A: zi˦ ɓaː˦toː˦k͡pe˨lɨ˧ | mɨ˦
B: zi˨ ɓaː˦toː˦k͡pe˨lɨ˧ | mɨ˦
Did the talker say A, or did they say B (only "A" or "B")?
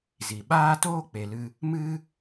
B